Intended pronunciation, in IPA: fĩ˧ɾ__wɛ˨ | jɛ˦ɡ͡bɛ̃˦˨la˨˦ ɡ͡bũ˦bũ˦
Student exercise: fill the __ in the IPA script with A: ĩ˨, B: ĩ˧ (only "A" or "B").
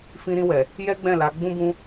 B